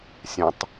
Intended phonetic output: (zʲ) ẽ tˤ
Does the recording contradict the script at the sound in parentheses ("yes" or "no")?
yes